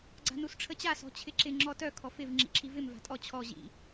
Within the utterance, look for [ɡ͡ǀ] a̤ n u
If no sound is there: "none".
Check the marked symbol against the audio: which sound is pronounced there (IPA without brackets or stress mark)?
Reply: ɡ͡ǀ